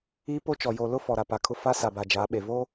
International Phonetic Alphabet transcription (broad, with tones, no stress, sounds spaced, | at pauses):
iː˦ p o˦ t͡ʃ ɔ˨ j o˨ l ʊ˦ f ɔ˨ ɾ a˨ p a˨ kʰ ʊ˦ f a˦ s a˨ b a˨ d͡ʒ aː˨˦ ɓ e˨ v oː˦